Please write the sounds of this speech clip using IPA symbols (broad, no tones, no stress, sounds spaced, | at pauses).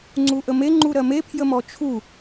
ŋ͡ǀ u ʔ ə m e ŋ͡ǃ u ɾ ɜ m e pʰ j ə m ɔ t͡ʃʰ u